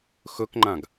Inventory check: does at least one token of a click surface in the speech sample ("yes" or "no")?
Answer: yes